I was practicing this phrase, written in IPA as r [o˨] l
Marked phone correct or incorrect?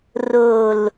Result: correct